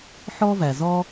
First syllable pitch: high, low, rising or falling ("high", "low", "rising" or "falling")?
high